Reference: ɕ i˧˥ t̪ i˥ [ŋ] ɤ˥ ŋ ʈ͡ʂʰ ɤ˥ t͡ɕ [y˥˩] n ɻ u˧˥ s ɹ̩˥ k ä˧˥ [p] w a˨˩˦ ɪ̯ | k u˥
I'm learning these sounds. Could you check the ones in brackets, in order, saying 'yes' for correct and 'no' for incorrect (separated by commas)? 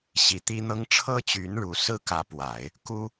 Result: no, no, yes